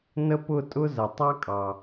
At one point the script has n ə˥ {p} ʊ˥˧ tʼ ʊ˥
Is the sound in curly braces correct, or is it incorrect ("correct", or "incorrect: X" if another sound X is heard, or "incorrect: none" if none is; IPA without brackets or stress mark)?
correct